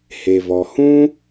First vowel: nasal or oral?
oral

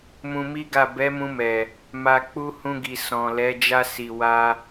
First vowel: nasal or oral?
nasal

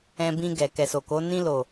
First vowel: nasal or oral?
nasal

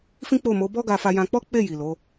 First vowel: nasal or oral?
nasal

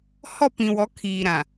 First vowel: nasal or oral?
oral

